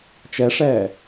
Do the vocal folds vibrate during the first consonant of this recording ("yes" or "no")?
no